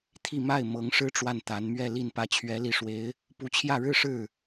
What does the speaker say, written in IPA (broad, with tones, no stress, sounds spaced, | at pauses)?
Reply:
t̪ʰ i˥˧ m a˥˩ ɪ̯ m ɤ˧˥ ŋ ʂ ɻ̩˥ ʈ͡ʂ w a˥˩ n t̪ a˧˥ n m ɥ ɛ˥˧ l i˥˧ n p ä˥˩ t͡ɕʰ ɥ ɛ˧˥ l i˨˩ ʂ w e˧˥ ɪ̯ | p u˧˥ t͡ɕʰ j ä˥˧ ɻ ɻ̩˥˧ ʂ ɻ̩˥˩